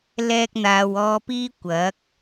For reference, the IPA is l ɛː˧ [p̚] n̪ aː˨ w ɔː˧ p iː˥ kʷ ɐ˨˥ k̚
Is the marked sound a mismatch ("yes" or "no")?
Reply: yes